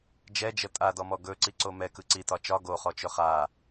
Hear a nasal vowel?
no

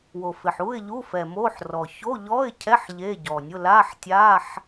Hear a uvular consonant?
no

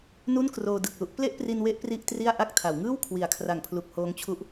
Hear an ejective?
no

